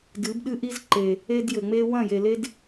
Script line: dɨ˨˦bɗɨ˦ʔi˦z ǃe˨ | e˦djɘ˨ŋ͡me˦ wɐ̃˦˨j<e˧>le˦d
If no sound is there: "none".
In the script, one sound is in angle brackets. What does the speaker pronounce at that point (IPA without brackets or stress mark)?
e˨